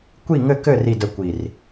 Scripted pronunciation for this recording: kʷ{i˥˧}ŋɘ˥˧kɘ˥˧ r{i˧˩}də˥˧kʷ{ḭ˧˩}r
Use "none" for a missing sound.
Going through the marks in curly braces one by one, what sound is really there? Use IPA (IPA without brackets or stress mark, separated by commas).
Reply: i˥˧, i˥˧, i˧˩